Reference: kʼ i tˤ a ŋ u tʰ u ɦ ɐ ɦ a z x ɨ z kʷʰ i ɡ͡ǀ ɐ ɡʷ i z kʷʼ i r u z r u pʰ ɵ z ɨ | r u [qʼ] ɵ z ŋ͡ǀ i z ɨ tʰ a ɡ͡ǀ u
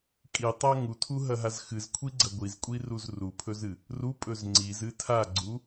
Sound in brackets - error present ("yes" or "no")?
yes